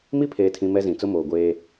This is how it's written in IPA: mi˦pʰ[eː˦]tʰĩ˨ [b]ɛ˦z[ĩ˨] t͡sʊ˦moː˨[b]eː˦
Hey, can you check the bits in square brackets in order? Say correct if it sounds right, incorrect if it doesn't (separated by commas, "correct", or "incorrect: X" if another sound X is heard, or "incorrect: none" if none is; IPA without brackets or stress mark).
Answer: incorrect: eː˨, incorrect: m, correct, incorrect: ɡʷ